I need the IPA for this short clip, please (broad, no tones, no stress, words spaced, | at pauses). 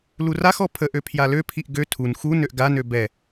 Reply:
luraxɔ pʰəʔø pʰjaløpʰiʔ ɡø tʰun xunøʔ ɡanø bɛ